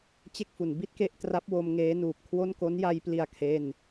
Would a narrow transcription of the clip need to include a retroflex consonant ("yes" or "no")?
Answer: no